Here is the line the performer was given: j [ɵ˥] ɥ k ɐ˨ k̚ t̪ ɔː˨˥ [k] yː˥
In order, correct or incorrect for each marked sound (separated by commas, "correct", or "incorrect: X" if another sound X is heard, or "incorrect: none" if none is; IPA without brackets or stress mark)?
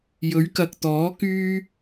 incorrect: ɵ˨˥, correct